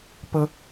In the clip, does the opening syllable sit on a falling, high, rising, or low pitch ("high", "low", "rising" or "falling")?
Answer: high